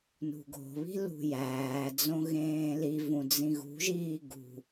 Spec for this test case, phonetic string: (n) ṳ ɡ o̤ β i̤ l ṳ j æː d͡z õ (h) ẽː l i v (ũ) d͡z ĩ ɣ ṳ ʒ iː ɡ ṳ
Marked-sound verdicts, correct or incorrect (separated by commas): correct, incorrect, correct